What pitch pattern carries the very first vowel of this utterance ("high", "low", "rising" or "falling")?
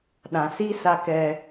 low